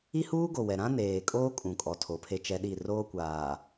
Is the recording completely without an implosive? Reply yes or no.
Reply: no